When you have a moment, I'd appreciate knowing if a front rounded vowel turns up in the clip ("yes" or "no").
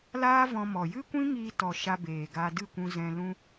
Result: no